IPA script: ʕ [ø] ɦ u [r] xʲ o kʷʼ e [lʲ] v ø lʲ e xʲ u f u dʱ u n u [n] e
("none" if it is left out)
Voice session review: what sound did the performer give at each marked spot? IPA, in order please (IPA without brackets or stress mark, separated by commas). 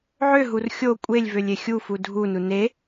ø, r, lʲ, n